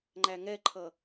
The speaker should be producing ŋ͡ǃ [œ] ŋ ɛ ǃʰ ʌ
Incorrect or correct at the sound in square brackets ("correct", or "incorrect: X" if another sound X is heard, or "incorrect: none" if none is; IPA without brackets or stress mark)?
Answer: incorrect: æ